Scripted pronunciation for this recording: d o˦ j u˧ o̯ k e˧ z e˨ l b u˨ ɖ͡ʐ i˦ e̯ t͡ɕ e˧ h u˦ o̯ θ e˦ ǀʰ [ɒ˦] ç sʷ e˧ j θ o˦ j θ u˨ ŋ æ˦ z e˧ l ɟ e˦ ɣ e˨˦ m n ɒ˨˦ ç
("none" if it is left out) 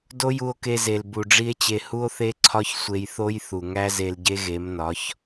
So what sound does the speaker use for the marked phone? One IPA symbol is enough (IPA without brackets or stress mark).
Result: ɒ˦